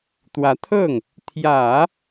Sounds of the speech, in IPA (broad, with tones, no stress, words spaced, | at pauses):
t̪wä˧˥t̪ʰɤ˥˩ŋ | t̪ʰjä˨˩˦